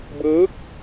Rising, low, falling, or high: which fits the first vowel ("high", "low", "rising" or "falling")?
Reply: rising